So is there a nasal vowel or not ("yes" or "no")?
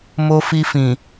yes